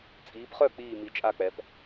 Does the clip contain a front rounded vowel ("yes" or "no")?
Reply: yes